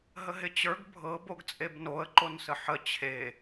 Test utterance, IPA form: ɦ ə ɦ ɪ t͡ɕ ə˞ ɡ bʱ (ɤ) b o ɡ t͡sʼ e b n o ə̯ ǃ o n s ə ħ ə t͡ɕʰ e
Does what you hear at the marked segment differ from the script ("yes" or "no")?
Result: no